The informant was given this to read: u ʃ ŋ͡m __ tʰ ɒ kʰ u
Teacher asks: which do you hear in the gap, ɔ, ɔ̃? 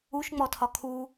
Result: ɔ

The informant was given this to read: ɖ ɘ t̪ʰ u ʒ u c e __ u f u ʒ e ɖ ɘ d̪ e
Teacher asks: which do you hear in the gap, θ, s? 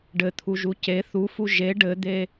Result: θ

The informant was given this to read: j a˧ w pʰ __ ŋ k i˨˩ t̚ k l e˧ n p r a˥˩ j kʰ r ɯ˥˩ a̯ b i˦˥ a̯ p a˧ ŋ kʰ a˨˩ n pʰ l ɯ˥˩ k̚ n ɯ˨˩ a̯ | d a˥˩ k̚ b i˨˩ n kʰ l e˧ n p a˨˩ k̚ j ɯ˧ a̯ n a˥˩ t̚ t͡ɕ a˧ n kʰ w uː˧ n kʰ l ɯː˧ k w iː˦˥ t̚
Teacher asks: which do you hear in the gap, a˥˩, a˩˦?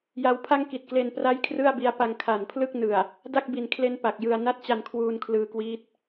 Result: a˥˩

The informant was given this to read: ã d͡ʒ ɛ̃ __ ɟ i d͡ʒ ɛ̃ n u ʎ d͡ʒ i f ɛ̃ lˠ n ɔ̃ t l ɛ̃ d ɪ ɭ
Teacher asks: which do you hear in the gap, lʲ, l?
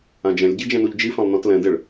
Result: lʲ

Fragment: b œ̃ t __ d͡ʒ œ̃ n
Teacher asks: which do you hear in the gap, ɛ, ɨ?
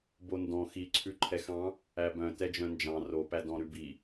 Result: ɛ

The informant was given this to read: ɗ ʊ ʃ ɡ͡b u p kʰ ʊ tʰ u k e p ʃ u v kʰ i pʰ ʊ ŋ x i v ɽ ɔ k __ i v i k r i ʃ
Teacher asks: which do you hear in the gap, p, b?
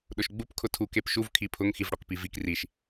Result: p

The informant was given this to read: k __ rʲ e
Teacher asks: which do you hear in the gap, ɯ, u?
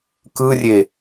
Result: ɯ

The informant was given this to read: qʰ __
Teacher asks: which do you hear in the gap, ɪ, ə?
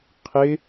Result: ɪ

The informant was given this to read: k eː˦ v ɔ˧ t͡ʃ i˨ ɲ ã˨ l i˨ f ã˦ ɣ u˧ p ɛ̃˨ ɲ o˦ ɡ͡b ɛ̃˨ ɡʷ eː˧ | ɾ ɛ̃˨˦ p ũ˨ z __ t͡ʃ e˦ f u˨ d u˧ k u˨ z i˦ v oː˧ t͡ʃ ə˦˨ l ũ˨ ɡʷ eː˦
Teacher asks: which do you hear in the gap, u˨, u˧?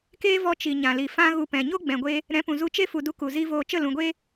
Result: u˧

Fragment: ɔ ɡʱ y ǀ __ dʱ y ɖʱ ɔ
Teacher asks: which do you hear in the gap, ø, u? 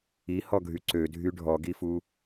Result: ø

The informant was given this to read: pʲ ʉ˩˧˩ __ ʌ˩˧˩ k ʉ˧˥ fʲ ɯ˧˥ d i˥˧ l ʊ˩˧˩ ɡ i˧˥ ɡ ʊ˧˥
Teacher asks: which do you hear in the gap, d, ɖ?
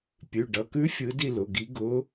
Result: ɖ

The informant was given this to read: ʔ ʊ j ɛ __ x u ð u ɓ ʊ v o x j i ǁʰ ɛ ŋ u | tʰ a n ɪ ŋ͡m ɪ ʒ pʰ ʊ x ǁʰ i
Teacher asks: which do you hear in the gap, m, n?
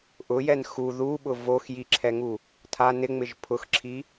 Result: n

